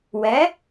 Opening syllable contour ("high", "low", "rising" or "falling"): rising